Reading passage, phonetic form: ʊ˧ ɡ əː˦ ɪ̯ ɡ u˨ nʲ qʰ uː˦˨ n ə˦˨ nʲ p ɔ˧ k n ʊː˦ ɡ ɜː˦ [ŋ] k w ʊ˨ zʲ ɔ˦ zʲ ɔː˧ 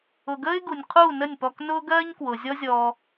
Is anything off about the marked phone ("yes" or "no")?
yes